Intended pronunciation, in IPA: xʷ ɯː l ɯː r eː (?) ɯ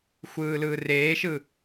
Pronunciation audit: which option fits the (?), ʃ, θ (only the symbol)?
ʃ